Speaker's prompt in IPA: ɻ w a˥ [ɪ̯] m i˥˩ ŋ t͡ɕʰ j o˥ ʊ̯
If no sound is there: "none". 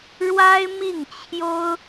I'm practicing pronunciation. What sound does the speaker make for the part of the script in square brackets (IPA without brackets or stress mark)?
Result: ɪ̯